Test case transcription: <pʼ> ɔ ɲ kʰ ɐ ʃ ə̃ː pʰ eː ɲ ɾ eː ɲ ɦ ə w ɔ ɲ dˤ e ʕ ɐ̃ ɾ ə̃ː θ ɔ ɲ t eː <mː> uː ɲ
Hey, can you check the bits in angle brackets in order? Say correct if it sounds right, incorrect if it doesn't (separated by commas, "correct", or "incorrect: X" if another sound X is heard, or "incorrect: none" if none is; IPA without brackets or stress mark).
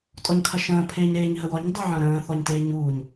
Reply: incorrect: tʼ, incorrect: ɲ